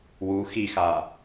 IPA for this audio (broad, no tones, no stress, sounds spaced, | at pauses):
w u x i x a